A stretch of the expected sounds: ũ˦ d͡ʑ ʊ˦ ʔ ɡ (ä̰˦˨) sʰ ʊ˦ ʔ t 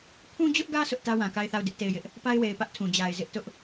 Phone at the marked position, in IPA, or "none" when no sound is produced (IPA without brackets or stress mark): ä˦